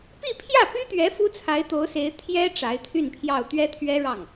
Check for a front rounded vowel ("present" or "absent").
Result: present